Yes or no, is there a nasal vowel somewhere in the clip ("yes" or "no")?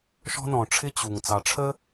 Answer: yes